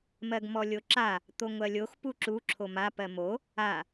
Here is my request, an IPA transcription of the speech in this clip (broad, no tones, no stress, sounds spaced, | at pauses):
m ɜ ɡ m ɔ lʲ o ǁ a | t̪ o ŋʷ ɜ lʲ o x p u ǁ u ǁʰ o m a p ɜ m o | a